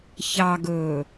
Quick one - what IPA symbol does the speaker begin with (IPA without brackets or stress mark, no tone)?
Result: ç